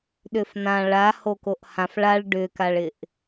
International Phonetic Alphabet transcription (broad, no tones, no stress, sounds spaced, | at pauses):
ɗ ʏ f n ã ɭ a h o k o ʔ h ã f ɭ a ɭ ɖ ʏ k a ɭ ɪ ʔ